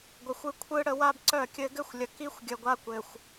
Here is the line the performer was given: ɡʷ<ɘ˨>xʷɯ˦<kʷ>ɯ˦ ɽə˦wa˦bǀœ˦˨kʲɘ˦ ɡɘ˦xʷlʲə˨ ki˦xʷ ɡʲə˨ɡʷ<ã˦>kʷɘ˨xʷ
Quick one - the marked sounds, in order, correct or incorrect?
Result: correct, incorrect: kʷʰ, incorrect: a˦

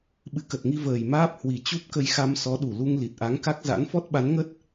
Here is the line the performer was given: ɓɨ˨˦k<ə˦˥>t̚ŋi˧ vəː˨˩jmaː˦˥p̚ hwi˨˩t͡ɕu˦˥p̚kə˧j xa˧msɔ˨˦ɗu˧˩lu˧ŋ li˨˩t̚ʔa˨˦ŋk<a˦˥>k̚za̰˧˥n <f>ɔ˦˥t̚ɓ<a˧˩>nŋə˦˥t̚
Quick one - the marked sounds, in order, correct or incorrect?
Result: incorrect: ə˨˩, correct, correct, incorrect: a˨˦

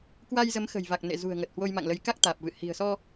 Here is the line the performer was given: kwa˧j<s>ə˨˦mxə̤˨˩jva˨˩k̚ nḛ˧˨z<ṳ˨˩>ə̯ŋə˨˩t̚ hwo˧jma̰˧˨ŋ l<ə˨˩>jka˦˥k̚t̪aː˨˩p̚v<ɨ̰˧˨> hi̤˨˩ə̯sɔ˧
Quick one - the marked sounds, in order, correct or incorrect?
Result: incorrect: z, correct, incorrect: ə˨˦, correct

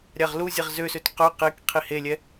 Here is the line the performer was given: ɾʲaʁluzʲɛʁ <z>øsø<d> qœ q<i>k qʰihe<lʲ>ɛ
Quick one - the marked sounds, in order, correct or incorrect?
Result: correct, incorrect: t, incorrect: e, correct

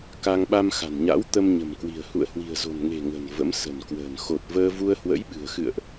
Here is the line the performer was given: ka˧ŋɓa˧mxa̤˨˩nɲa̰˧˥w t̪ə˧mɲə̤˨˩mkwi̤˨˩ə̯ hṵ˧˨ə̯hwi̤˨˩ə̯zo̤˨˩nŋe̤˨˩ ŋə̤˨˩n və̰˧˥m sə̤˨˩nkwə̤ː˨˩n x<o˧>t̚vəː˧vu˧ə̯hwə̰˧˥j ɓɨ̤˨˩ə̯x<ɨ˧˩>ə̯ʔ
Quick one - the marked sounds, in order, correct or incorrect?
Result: incorrect: o˨˩, incorrect: ɨ̰˧˨

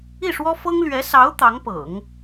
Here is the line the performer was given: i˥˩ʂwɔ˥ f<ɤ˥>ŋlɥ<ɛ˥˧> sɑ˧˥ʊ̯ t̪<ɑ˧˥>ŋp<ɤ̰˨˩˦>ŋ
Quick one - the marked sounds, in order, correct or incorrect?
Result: correct, incorrect: ɛ˧˥, correct, correct

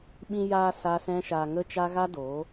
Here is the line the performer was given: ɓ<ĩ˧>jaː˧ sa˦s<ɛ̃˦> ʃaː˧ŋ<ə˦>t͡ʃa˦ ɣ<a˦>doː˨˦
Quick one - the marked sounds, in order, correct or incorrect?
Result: correct, correct, correct, correct

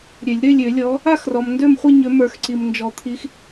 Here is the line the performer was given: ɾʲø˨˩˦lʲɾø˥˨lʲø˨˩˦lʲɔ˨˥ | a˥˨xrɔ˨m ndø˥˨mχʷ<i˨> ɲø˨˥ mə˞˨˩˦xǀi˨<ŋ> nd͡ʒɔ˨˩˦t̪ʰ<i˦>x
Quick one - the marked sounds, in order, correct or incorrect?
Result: incorrect: i˥˨, incorrect: m, incorrect: i˨˥

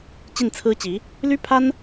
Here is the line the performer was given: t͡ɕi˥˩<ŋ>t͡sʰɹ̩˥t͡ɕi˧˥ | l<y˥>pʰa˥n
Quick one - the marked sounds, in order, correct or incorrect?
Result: incorrect: n, correct

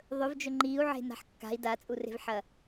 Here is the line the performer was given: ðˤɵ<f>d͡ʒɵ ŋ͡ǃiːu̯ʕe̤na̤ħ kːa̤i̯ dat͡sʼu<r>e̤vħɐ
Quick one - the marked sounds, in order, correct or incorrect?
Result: incorrect: v, correct

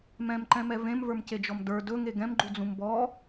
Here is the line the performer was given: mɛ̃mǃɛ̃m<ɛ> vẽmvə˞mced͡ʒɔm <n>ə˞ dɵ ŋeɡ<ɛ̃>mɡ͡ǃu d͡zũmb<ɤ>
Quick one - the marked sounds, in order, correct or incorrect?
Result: correct, incorrect: d, correct, incorrect: ɔ

